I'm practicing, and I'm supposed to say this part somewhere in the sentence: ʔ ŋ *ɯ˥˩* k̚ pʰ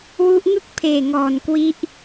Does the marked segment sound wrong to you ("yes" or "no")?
no